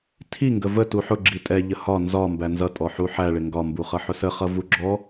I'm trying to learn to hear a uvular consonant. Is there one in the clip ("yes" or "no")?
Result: yes